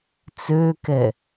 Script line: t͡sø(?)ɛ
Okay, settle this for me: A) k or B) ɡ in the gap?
A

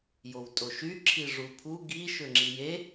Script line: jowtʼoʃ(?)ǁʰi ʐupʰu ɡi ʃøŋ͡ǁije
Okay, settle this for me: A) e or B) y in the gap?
B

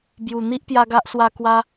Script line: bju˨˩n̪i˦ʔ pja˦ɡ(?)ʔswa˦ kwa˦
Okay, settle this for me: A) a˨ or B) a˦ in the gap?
B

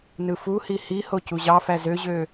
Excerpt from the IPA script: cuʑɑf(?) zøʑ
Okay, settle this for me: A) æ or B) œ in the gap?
A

